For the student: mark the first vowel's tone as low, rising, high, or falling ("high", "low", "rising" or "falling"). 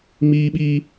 high